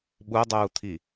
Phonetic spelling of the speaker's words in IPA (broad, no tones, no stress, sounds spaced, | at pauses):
ɓ u dˤ uː t̪ʰ i